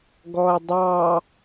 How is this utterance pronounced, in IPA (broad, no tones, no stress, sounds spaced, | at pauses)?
ɡ ɔ ɐ̯ dˤ ɑ